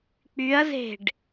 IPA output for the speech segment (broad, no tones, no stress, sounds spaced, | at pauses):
k͡p y ɐ̯ z e̤ ɖ